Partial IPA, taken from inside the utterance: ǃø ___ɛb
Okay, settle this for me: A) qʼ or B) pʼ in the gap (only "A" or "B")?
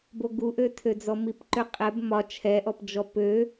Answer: A